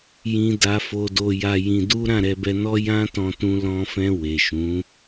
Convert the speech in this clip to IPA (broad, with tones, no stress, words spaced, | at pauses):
jĩ˧ da˧fo˧do˧ja˧ jĩ˧du˦ ɾã˦˨ɾɛ˧bɛ˧nɔ˦ jã˦tɔ̃˧tũ˧ lɔ̃˧fɛ̃˧ we˨ʃũ˨˦